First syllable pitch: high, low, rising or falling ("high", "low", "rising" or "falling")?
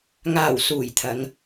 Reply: low